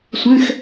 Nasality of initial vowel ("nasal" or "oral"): nasal